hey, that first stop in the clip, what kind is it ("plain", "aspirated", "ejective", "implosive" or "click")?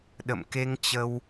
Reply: implosive